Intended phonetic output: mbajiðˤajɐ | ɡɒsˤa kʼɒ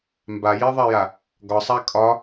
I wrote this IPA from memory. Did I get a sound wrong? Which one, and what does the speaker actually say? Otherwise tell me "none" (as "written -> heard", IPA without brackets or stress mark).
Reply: ɐ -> a